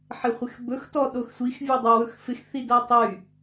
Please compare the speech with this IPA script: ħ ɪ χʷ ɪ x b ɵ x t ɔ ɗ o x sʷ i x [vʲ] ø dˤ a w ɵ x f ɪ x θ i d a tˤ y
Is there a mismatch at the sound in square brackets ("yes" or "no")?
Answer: no